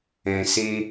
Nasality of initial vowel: nasal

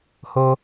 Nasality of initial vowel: oral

